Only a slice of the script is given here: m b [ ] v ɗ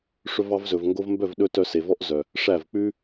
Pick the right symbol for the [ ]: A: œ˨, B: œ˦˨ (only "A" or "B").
B